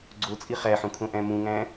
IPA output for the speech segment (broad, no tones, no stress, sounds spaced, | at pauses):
ɡ͡ǀ o t͡sʼ i χ æ ħ ũ kʰ õ ʔ æ̃ m ũ ŋ æ̃